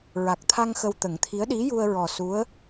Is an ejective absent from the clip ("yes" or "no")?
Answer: yes